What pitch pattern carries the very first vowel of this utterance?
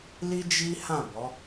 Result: high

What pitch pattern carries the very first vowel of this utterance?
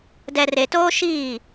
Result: low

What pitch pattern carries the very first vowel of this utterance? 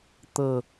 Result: low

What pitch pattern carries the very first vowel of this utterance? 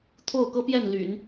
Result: falling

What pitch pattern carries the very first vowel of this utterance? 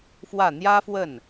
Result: falling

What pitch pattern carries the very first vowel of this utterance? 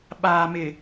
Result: low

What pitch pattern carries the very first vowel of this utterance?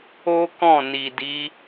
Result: high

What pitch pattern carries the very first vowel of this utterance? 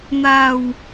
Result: low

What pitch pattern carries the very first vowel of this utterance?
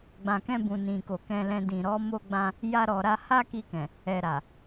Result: low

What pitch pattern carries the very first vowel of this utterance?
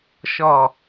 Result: low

